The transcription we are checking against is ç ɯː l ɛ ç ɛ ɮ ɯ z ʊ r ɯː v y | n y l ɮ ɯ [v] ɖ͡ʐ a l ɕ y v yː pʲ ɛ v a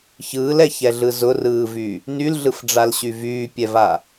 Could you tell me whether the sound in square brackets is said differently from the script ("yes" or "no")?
yes